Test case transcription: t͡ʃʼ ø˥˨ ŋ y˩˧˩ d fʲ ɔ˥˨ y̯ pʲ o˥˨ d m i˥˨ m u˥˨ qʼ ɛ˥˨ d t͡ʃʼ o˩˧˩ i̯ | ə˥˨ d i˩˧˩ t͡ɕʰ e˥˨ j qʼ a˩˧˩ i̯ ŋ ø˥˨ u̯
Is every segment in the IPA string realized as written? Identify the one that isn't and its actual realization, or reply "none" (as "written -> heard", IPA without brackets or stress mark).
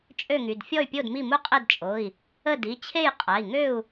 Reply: none